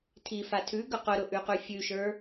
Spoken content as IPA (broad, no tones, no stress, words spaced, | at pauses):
tʰifa tʰʉɡɵ qʊɾʊʔʉqʉ fʲʉʃə˞